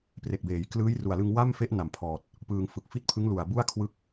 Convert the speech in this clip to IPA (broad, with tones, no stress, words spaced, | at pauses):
pre˨˩k̚beː˩˦j klɯː˦˥jru˨˩a̯lɯ˧ŋ wa˥˩mfe˦˥ʔ na˨˩mpʰɔː˨˩t̚ | pɯː˧ŋ fɯ˨˩k̚ fi˥˩t̚pʰɯ˦˥ŋ lu˨˩a̯ bu˥˩a̯kʰwɯ˦˥k̚